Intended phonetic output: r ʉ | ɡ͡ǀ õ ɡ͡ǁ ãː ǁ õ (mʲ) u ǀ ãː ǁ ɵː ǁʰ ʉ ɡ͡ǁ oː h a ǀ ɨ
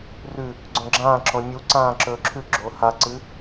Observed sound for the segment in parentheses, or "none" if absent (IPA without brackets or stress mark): mʲ